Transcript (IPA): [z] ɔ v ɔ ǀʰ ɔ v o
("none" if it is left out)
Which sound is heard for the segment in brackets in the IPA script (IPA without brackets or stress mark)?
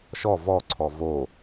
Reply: ʃ